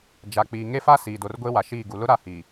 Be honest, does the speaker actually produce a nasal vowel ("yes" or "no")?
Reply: no